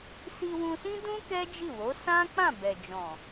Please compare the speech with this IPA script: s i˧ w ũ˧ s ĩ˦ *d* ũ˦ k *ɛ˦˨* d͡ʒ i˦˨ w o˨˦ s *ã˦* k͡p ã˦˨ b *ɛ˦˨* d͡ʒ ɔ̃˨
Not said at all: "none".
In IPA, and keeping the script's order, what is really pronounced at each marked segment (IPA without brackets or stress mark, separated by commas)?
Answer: d, ɛ˦, ã˦, ɛ˨